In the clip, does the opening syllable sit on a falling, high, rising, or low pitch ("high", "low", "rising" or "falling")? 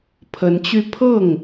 rising